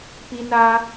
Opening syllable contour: high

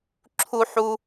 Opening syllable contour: high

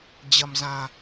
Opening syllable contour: low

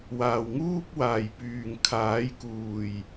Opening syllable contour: low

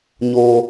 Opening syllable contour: high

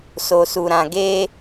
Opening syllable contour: low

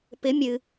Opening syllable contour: rising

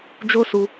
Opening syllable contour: high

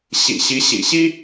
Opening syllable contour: low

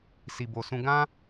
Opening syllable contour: low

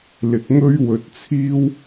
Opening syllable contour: low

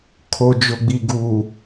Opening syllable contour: low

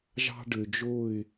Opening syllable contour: high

